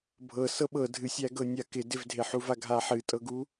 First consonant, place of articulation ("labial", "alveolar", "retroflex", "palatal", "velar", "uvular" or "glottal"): labial